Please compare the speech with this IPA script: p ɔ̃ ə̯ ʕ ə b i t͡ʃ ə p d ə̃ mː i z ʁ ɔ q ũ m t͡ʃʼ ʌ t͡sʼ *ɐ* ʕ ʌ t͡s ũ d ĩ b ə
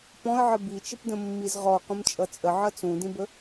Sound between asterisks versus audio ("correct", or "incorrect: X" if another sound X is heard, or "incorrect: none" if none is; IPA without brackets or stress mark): incorrect: ə